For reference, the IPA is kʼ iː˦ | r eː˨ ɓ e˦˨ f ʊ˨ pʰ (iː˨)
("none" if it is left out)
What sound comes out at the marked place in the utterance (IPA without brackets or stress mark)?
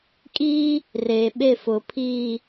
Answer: iː˦˨